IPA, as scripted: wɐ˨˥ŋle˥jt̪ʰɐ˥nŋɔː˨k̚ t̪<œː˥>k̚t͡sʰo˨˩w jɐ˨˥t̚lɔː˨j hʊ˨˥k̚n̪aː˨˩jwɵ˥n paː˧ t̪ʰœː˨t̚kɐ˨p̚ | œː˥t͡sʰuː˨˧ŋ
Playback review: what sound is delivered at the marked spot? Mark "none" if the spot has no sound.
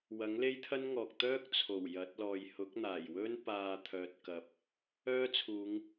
œː˥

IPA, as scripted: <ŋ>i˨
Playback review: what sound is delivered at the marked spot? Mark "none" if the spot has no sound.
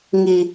ŋ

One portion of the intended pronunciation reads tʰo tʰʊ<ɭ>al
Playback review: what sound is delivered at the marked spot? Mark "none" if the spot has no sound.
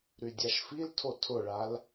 ɭ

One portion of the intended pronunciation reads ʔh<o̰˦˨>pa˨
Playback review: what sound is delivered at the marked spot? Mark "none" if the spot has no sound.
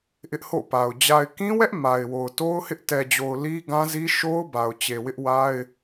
o̰˦˨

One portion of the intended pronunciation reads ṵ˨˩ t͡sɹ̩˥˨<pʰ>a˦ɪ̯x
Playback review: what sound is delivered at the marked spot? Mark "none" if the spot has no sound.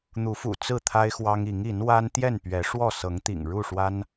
t̪ʰ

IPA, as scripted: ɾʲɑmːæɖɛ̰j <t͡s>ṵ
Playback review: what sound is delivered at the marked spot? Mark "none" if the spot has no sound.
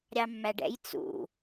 t͡s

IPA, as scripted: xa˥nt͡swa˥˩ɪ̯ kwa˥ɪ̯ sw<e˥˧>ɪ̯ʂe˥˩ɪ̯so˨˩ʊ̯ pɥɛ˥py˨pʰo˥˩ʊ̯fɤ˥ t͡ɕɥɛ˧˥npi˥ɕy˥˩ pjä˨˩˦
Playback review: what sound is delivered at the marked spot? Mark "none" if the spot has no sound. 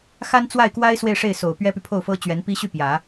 e˥˧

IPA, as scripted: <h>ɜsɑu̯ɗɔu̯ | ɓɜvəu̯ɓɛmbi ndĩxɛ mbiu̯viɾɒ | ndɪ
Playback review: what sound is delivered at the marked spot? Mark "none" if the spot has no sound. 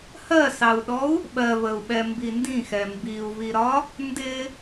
h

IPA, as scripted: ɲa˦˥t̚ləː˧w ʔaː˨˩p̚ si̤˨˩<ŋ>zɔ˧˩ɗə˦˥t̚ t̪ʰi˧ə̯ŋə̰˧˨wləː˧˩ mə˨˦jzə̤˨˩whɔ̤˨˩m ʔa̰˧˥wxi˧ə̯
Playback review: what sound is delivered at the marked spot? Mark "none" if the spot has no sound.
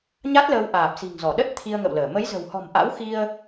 ŋ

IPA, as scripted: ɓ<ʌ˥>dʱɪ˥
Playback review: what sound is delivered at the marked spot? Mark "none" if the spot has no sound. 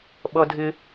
ʌ˥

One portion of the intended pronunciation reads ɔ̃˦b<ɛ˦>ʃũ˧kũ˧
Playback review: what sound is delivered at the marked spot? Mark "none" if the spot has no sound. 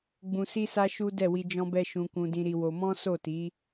ɛ˦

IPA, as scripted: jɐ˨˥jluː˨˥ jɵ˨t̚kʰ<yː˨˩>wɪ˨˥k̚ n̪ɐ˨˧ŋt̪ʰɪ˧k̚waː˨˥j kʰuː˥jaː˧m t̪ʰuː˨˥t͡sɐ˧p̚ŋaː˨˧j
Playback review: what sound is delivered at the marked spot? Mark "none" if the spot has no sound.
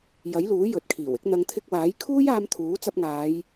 iː˨˩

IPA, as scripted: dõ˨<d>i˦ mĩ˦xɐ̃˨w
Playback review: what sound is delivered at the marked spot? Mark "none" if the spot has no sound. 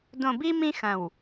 b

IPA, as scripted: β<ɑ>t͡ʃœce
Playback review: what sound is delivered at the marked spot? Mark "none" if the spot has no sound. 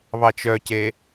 ɑ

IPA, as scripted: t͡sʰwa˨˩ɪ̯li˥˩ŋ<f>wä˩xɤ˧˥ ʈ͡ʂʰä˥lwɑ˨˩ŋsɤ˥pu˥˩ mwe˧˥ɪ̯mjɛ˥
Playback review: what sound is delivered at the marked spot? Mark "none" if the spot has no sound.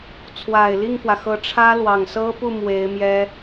f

